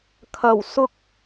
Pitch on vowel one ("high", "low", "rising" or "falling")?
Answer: low